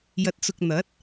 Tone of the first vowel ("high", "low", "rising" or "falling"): low